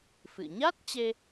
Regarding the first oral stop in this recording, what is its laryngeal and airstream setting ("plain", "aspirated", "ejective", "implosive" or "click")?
plain